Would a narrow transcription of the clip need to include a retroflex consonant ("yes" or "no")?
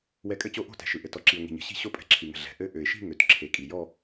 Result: no